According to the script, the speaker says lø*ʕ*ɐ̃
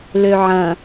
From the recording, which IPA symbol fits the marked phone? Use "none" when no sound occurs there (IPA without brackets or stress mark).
ʕ